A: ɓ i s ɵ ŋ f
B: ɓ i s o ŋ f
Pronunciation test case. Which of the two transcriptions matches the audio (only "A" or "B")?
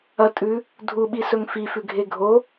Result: A